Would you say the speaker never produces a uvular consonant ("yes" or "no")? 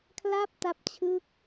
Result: yes